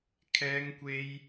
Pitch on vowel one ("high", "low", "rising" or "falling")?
high